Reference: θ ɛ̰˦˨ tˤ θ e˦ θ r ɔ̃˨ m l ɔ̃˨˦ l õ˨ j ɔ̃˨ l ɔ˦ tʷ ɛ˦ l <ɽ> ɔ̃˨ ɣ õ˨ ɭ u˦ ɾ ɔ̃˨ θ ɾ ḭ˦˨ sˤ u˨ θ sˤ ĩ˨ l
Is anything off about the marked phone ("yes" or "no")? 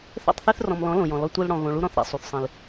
no